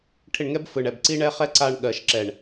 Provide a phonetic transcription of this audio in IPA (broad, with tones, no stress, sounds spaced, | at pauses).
ʈʰ ɪ˦˨ ɳ ŋ ɛ˦ b f ɯ˨ ɳ ɛ˨ b ǀ i˦ ɳ ɛ˦ χ ɛ˦ ǀ a˦ ɳ ɠ ɜ˨ ʃ ǁ ɛ˨ ɳ